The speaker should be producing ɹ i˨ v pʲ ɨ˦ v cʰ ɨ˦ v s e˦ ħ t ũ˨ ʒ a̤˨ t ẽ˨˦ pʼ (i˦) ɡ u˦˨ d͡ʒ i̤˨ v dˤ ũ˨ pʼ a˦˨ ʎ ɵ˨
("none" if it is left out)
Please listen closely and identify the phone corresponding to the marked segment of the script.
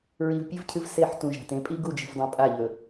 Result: i˦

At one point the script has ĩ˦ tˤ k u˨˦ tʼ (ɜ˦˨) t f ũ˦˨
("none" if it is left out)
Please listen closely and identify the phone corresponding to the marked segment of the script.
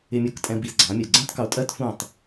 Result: ɜ˦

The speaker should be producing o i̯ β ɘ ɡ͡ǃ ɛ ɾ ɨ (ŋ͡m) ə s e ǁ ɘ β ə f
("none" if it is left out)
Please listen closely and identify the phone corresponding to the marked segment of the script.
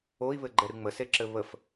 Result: ŋ͡m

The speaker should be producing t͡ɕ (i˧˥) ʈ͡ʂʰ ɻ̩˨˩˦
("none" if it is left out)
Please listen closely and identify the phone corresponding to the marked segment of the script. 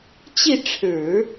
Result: i˥˩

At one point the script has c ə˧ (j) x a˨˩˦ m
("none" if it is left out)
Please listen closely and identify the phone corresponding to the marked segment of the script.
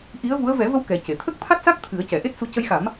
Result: j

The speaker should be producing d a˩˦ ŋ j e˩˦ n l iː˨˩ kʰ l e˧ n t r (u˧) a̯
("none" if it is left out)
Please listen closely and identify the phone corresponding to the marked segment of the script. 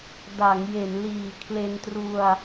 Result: u˧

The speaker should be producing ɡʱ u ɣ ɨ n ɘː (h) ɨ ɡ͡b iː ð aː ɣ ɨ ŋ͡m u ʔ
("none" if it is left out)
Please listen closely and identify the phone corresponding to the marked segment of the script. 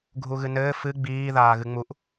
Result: f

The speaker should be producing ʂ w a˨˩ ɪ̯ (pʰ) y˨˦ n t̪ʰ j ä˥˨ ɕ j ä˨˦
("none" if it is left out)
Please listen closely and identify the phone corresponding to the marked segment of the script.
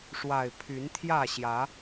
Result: pʰ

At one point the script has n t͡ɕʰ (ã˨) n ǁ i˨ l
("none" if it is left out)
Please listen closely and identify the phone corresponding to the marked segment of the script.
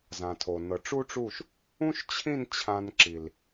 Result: ã˧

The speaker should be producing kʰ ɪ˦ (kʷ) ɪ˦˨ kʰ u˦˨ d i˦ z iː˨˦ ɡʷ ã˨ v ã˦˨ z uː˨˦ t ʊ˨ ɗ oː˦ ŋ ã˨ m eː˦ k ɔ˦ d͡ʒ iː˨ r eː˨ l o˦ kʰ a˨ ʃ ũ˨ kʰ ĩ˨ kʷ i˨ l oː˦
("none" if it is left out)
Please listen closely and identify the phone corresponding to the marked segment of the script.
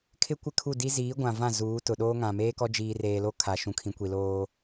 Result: kʷ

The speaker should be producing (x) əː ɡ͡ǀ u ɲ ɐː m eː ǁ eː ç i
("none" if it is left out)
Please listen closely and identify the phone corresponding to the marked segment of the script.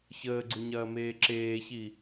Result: ç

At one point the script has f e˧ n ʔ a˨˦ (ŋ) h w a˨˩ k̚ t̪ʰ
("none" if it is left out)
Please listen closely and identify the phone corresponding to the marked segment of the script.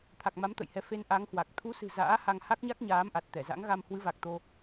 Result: ŋ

